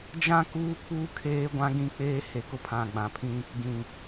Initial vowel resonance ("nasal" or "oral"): nasal